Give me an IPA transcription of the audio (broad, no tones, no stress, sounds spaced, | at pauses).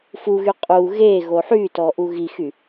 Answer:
f u ɣ y qʼ u ɣ e ɣ o ħ y t ɔ ʔ u ɣ i x y